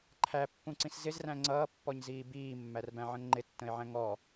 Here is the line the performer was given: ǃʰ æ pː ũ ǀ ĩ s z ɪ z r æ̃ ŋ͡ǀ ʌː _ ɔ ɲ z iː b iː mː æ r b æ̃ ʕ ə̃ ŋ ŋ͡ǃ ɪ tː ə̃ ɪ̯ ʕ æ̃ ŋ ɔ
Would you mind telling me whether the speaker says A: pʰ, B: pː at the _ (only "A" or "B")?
B